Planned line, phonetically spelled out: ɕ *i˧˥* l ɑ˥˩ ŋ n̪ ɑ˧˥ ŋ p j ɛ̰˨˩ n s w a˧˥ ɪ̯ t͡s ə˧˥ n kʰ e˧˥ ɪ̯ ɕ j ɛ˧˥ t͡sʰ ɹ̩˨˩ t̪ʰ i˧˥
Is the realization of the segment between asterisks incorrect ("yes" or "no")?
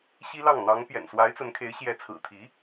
yes